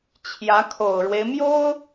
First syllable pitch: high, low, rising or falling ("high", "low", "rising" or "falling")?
rising